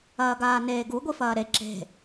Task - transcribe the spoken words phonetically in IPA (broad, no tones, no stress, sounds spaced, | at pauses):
ɐː ɡ aː n eː ɡ u ɡʷ i f ɐː ɾ e ǁ e̤